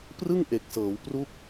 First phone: p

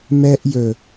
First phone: m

